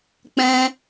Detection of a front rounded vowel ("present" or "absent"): absent